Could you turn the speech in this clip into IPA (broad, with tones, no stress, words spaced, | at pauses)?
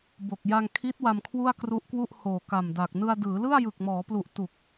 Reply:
bo˨˩k̚ ja˧ŋkʰi˦˥t̚ wa˧mkʰwu˥˩a̯kru˦˥ʔkwu˥˩ʔ hoː˨˩ka˨˩mda˨˩k̚ nɯ˧a̯dɯː˩˦lɯ˥˩a̯ jɯ˨˩k̚mɔː˩˦plu˨˩ʔ tu˨˩k̚